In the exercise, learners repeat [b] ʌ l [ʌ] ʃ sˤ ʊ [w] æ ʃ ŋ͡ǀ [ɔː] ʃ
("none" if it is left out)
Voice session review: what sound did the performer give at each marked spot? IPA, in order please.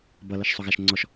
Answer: b, ʌ, ɣ, ɔ

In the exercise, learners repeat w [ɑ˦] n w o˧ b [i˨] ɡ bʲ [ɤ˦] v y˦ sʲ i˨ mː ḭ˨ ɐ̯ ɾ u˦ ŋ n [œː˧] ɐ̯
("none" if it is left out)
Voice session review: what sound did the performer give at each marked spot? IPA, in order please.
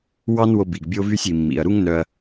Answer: ɑ˦, i˨, o˦, œ˧

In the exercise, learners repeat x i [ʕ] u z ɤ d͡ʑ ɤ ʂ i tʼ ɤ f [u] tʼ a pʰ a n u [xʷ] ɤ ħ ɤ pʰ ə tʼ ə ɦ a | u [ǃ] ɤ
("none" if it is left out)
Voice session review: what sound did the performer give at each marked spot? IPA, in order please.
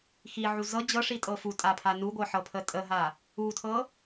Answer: ʕ, u, ɡʷ, tʰ

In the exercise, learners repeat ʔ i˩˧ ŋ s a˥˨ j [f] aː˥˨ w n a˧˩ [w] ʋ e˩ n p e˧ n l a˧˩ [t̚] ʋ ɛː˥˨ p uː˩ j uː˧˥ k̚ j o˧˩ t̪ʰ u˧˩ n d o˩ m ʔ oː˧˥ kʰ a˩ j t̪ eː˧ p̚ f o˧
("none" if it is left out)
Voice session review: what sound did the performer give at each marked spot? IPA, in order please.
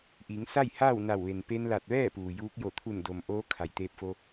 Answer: h, w, t̚

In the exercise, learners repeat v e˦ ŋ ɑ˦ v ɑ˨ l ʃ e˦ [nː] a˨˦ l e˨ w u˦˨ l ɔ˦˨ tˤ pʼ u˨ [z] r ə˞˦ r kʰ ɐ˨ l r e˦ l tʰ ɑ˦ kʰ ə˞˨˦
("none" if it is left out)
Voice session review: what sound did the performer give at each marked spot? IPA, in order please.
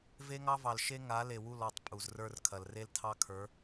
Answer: ŋ, z

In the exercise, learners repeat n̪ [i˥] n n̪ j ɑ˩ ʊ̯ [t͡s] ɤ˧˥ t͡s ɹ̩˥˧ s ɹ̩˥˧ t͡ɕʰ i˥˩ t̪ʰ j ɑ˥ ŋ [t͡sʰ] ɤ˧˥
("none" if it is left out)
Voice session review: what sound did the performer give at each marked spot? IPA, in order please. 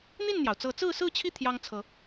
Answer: i˥˩, t͡s, t͡sʰ

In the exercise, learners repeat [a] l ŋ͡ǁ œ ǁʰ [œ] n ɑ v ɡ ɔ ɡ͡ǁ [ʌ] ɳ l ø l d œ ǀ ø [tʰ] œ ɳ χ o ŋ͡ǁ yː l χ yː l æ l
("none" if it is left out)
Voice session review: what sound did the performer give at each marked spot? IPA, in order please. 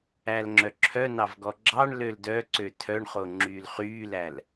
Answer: æ, œ, ɑ, tʰ

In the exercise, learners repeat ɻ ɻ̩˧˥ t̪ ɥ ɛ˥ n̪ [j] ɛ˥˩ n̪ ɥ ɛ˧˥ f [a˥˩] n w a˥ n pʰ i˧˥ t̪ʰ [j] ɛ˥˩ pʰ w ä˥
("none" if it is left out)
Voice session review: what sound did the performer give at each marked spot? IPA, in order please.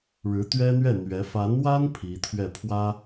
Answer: ɥ, a˧˥, ɥ

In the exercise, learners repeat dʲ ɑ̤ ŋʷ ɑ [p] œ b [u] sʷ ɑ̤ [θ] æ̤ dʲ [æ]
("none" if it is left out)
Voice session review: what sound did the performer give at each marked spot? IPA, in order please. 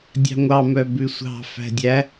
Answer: m, ʉ, f, æ

